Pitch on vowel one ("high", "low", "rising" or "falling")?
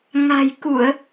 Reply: low